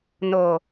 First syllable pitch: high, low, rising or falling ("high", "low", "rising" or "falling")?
low